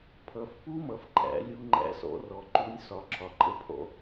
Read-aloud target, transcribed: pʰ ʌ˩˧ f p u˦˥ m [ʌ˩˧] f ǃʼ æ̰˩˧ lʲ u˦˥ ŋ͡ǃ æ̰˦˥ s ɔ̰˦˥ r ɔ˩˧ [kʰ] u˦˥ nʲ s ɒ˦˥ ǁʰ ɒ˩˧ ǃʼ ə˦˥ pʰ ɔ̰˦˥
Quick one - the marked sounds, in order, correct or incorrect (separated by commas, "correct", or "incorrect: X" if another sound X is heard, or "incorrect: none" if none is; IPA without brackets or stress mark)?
correct, incorrect: ǃ